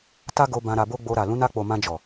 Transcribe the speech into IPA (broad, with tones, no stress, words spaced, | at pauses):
ta˦ɡo˧ bã˧ɾa˧bo˦ɡ͡bo˧ ɾa˨ lũ˨˦na˧k͡po˨ mã˧d͡ʒɔ˨